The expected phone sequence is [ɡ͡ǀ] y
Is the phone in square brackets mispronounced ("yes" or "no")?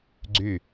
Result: no